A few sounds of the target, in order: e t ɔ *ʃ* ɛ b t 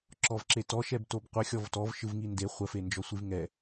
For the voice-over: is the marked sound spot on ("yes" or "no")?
yes